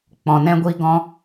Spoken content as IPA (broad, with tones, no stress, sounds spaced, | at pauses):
k͡p ɔ̃˨ n ɛ̃˦ ɡʷ i˦ ɡ ɔ̃˦